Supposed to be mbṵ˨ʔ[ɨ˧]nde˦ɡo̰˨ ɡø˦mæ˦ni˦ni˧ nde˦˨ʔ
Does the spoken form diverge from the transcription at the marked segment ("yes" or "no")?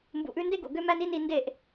yes